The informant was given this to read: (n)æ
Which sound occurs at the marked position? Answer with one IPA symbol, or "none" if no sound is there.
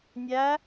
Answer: nʲ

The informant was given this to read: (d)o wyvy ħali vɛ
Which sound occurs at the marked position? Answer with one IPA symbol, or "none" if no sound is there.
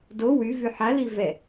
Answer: d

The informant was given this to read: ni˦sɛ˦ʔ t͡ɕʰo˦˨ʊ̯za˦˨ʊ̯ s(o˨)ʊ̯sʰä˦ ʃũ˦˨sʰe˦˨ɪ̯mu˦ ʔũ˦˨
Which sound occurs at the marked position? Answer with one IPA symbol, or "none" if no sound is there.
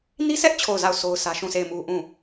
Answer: o˦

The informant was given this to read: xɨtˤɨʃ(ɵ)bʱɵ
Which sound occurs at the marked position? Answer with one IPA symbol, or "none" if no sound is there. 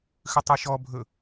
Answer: ɔ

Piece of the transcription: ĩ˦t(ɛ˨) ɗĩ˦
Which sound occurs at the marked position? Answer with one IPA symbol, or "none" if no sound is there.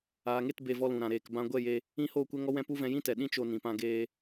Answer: ɛ˨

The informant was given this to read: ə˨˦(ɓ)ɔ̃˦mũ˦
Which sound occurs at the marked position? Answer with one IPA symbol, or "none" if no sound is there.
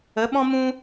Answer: ɓ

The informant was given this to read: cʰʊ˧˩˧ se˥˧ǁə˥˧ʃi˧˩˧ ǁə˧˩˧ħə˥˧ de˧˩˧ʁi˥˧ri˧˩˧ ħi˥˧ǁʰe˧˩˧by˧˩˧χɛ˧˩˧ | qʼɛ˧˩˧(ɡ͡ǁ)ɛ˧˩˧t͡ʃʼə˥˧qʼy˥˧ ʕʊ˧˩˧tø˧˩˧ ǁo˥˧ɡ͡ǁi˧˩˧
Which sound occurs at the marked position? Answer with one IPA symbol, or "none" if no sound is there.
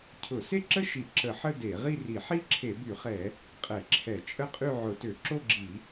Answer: ǁʰ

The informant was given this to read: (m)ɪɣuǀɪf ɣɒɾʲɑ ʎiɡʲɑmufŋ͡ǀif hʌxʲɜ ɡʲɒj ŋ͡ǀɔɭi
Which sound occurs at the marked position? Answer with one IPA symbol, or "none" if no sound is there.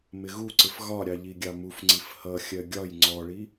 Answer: m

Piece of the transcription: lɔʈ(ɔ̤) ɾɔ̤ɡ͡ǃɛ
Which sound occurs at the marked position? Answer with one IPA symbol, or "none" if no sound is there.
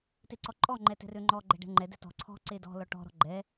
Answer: ɔ̤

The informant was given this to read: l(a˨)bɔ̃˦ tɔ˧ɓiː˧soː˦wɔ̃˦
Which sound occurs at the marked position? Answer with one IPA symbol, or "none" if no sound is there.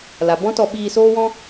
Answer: a˨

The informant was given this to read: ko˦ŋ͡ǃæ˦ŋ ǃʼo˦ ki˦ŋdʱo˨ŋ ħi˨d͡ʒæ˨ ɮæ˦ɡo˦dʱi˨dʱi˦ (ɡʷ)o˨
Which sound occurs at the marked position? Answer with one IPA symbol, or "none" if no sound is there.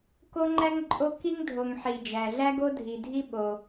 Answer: ɓ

